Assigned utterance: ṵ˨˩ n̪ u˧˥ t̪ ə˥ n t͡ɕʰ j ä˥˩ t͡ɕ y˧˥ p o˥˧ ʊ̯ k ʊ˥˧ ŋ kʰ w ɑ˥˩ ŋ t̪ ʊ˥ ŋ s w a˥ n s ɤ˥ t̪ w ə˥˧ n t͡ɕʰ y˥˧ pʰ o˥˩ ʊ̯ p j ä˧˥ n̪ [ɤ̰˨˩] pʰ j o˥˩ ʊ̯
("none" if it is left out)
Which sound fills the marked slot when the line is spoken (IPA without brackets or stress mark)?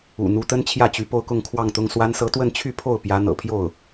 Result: ɤ̰˨˩